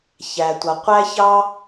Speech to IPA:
ç æ˩ tʷ ʌ˩ qʷ æ˥ ç ɑ˥

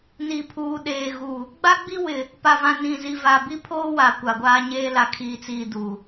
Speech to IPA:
n i˨ pʰ uː˨ ɗ eː˨ ɣ u˨ | ɡ͡b a˦ ɡ͡b i˦ w ɪ˨ | p a˨ v ã˨ n ĩ˨ z i˨ v a˨ b i˦ pʰ oː˦ w a˨ kʷ a˨ ɡʷ aː˦ ɲ eː˦ l a˨ kʰ iː˨ t͡s iː˨ d u˨

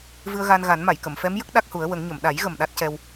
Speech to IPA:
v ɨ˧ ə̯ ɣ a˧ n ɣ a˨˩˦ n m a˨˩˨ j k ə˨˩˨ m f ɛ˧˥ m j ə˦˥ k̚ ɗ a˦˥ k̚ h u˨˩˦ ə̯ w ə˨˩˦ ŋ ɲ ə˨˩˨ m ɗ a˨˩˦ j ɣ ə˨˩ m ɗ a˦˥ t̚ c ɛ˧ w

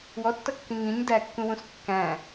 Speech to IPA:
w ɔ tː ʌ kː ĩ ŋ ĩ ɲ d æ kː ũ w ũ s kː æ̃

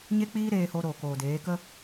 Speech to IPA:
ɲ e˦ k͡p iː˦ ɾ eː˧ h o˧ ɾ oː˨ k oː˨ d eː˨˦ k ə˦

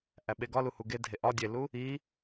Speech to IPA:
ʔ æ ɓ e ɡ ɒ l u h u ɡ e dʱ e ʔ ɒ dʲ e l u | i

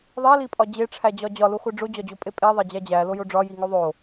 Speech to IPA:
ðˤ e l i pʼ ɒ d͡ʑ e ʈ͡ʂʰ æ d͡ʑ ɒ d͡ʑ ɒ l u χʷ e ɖ͡ʐ o d͡ʑ ɒ d͡ʑ o pʼ e pʼ e ðˤ e d͡ʑ æ d͡ʑ æ l o j o ɖ͡ʐ ɒ j i ŋ o ðˤ o

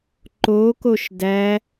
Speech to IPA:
ǃ o k o ʃ d æ

